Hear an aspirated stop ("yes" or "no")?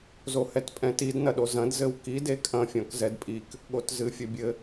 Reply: no